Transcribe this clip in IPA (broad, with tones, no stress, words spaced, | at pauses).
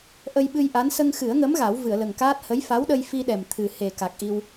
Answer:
ʔə˧jɓɨ˧jʔa˧˥n sə˧ŋxɨ˨˩˦ə̯ŋə˧˥m ɣa˨˩˦wvɨ˨˩˨ə̯lə˨˩ŋkaː˦˥t̚ hə˧˥jfa˧˥wɗə˧j fi˧ɗɛ˨˩m t̪ʰɨ˨˩he˨˩ ka˨˩k̚ʔi˧w